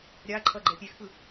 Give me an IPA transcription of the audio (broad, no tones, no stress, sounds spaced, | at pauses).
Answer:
ɾʲ a ǃʰ ʌ ɡ͡ǃ ɛ pʲ e x p ɯ